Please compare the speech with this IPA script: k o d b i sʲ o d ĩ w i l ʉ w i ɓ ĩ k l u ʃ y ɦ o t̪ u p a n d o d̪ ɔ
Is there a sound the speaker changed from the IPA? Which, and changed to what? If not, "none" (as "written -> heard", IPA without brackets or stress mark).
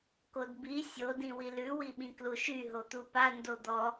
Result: none